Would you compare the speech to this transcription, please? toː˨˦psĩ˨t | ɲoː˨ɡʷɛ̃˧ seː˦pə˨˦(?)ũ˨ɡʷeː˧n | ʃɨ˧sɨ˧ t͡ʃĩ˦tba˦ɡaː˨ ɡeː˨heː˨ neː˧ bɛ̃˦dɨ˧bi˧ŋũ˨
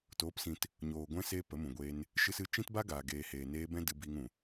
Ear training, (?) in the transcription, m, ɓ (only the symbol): m